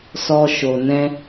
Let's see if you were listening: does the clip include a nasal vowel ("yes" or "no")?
yes